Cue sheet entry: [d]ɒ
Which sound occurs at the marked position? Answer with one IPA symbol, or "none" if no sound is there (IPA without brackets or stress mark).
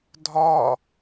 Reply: dʱ